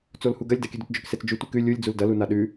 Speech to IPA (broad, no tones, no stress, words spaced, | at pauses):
t͡solhuɡɐlʲ dakʲʉdutd͡ʒɵk set͡sd͡ʒʉ tʷikʉ lʲulʲ d͡zuldɐ lunaɗʉ